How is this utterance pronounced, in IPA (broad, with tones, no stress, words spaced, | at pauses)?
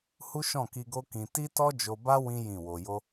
hu˦ʃɔ̃˦˨ki˧ɡo˦ kĩ˧ ti˦tɔ˦d͡ʒo˧ba˦ wĩ˦ jĩ˦˨wo˧ jo˦